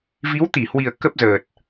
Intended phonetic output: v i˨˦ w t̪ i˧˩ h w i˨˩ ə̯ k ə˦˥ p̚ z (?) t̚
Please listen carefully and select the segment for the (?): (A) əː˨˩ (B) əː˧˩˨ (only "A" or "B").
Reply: A